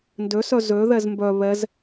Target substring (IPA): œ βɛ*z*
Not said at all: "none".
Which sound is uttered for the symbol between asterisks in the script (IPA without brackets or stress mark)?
z